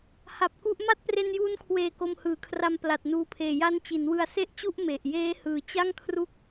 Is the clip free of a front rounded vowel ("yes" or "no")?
yes